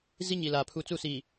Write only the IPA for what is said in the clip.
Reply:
zi˦ɲi˨laː˨pʰu˨ t͡su˦˨siː˨

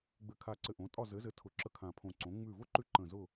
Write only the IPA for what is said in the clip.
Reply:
ɡ͡bɘ˧˩kʰa˧˩ǀɘ˧˩ ʔõ˩˥tʼɒ˥˨ zɘ˩˥zɘ˩˥tʰʊ˩˥ǁə˧˩ kʰã˧˩pʰõ˧˩ ǀõ˩˥ ŋ͡mʉ˧˩vʊ˥ ǃʉ˥˨ ǃə̃˧˩zʊ˥˨

